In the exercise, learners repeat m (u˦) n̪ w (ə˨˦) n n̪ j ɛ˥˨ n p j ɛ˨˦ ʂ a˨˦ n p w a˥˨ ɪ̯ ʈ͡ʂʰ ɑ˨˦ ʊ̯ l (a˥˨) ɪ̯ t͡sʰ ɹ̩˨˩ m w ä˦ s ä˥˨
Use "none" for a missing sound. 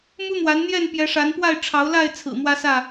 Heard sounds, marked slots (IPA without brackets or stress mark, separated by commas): u˦, a˨˦, a˥˨